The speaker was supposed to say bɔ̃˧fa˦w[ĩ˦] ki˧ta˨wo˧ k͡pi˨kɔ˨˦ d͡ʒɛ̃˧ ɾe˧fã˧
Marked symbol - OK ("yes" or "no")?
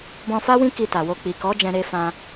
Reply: yes